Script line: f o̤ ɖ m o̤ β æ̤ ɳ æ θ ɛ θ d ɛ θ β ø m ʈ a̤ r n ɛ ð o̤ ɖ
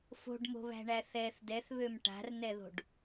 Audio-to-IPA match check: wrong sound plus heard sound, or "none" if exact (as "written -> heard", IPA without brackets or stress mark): none